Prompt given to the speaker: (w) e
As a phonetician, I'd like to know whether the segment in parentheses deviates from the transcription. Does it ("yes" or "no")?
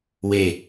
no